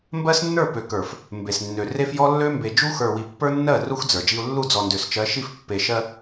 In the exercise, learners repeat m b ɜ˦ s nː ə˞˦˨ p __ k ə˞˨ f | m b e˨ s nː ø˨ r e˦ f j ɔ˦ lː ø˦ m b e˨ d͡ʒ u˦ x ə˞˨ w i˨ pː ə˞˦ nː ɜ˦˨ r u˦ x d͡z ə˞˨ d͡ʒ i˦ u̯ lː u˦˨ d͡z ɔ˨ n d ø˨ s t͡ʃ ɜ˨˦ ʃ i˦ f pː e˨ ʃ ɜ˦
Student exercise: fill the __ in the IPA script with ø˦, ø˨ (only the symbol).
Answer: ø˨